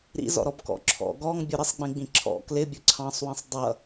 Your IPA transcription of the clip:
ɾ ḭ z ɔ̰ ɾ ɔ b k ɔ̰ ǁʰ ɔ̰ ɡ ɔ ŋ bʲ ʊ ɾ ɪ sˤ ɡ͡b ĩ ɡ͡b ĩ ǁʰ ɔ̰ k l ɪ bʲ ʊ ǀʰ ɑ̃ sˤ w ĩ sˤ dˤ ʌ

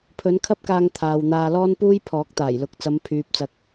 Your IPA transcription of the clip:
pʰ ɵ˨˥ n kʰ ɐ˥ p̚ k aː˧ ŋ t̪ʰ aː˨ w n̪ aː˧ l ɔː˥ n p uː˥ j pʰ ɔː˨˥ k̚ t̪ aː˨˩ j l ʊ˨˥ k̚ t͡s ɐ˨˧ m pʰ yː˨ p̚ t͡s ɐ˨ k̚

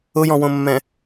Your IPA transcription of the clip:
ʊ j ɔ̃ w õ mː ɛ̃

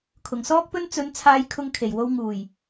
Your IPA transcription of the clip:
kʰ ʊ˨˩ ŋ s ɔː˥ k̚ p ɵ˥ n t͡s ɵ˨˧ n t͡sʰ aː˧ j kʰ ʊ˧ ŋ kʰ e˨˩ j w o˧ w ŋ uː˨˩ j

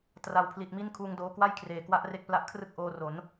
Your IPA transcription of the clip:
t r a˨˩ w pʰ l i˨˩ t̚ m i˦˥ n kʰ uː˧ ŋ d oː˧ k w a˥˩ j kʰ r eː˨˩ k w a˦˥ ʔ r e˦˥ k̚ p l a˦˥ ʔ kʰ r ɯ˥˩ k̚ ʔ oː˧ r o˩˦ n

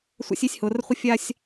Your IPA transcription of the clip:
sʷ a̰˦ sʲ i˦ sʲ h ʊː˨ r χʷ ɪ˦ fʲ a˦ sʲ

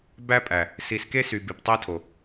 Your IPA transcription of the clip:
b æ˦ pʼ æ˨ | s i˨˦ s k e˦ s y˨ b i˨ p tˤ æ˦ tʰ o˨

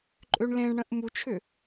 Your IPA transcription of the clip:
ǃʼ ø ɳ l ẽ ɳ ɽ ə̃ ʔ m u t͡ʃʰ ʏ

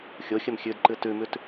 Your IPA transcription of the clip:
xʲ o xʲ ə m xʲ ʉ d ǃ ɨ t ʉ m ʉ t

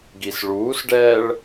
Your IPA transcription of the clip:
ɡ i s ɭ uː s ɖ ɛː ɭ

